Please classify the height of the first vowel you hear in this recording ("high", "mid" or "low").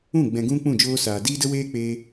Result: high